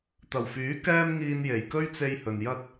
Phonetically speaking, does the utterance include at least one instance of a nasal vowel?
no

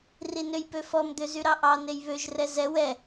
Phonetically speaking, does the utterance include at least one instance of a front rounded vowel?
yes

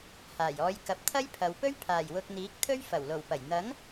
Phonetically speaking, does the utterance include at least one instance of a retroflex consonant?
no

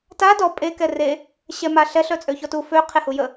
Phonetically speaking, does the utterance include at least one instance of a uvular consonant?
yes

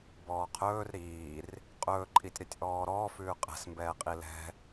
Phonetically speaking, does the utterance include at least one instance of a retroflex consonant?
no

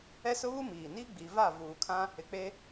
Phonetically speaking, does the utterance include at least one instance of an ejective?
no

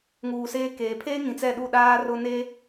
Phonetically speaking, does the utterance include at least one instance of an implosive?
yes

